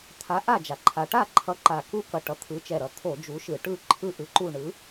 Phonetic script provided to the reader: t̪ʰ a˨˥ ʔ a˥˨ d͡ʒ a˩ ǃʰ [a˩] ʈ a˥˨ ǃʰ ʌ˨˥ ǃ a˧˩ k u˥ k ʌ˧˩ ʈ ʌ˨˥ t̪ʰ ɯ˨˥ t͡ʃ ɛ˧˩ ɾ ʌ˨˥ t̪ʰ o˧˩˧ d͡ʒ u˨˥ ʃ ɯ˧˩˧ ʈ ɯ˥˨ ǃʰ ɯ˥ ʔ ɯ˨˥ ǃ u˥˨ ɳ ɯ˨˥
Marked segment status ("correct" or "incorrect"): correct